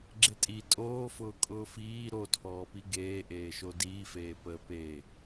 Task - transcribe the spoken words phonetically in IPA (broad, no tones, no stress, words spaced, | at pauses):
ɡ͡ǁetʼi tʼoːfʊː kʼʊːfiː ɾotʰɔːpi ɡeːʔeːʃo diːfeː pəːpeː